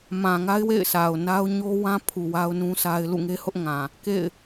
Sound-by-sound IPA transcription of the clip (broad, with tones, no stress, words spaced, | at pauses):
mã˨ŋa˦ɪ̯wḛ˦˨ɪ̯sʰa˨ʊ̯ na˦ʊ̯ ɲo˦wã˦pʰu˨ wa˦ʊ̯nũ˦sʰa˦ɪ̯ lṵ˦˨ŋe˦hʊ˦ʔŋã˨ | kḛ˦˨ɪ̯